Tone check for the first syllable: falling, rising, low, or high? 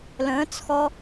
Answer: rising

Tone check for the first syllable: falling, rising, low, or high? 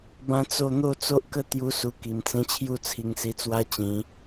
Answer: high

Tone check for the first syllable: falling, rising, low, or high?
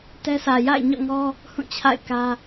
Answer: high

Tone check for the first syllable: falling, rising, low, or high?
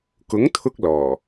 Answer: rising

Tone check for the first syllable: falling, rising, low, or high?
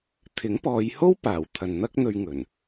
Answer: rising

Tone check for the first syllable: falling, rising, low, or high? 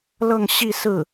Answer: falling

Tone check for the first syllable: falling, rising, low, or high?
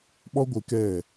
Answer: high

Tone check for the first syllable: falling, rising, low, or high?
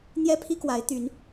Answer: high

